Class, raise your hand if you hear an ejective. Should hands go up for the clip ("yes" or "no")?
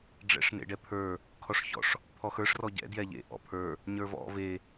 no